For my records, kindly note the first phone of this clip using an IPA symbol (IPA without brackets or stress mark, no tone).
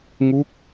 ŋ